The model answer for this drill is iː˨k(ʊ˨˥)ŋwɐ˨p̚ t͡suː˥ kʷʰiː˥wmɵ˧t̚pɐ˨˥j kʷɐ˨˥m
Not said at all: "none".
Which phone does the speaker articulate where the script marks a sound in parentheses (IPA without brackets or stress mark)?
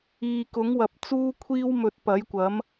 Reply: ʊ˨˥